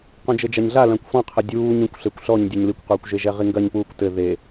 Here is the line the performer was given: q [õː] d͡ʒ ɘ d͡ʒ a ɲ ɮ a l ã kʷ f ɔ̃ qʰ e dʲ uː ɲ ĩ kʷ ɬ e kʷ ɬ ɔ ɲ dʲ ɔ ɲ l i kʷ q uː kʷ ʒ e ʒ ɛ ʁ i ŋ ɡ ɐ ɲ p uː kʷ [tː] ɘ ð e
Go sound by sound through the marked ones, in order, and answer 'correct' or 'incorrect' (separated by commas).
incorrect, incorrect